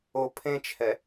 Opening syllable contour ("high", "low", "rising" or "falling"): low